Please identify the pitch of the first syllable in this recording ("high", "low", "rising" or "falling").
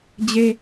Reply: high